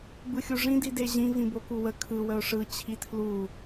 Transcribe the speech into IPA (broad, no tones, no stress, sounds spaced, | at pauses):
b ɯ xʲ u ʐ ĩ d i d e ʑ ĩ v ĩ b o k u w ə kʰ ɯ w ə ʊ̯ ʂ ɯ t͡ɕʰ i tʰ l u